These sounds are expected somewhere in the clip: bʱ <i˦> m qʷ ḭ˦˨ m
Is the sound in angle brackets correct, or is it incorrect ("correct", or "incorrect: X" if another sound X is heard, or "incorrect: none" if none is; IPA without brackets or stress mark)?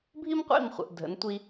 correct